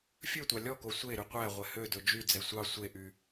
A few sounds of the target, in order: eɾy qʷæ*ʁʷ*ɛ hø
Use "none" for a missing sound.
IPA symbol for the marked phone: ʁʷ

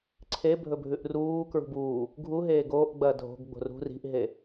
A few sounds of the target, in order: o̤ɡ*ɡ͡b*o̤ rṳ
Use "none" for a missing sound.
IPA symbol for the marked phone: ɡ͡b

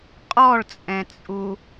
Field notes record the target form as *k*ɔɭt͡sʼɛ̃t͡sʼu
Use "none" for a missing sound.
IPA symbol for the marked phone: qʼ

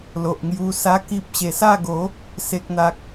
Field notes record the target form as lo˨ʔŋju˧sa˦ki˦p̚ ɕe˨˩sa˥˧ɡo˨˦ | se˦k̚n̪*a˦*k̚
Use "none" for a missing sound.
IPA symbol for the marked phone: a˦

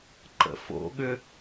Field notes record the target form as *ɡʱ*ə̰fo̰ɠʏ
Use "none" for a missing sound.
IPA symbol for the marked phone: ǃ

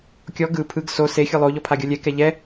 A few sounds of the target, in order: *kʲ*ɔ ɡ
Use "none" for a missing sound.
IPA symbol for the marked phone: kʲ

